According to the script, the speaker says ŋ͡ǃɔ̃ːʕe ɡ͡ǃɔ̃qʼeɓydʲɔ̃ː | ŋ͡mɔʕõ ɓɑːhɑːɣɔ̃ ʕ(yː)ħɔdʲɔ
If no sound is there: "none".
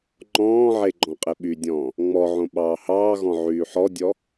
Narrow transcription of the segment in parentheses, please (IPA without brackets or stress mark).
yː